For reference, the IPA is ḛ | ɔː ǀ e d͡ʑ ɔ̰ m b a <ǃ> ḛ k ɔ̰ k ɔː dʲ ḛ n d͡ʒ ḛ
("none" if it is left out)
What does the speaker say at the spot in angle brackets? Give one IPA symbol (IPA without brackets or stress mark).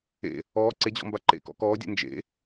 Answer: ǃ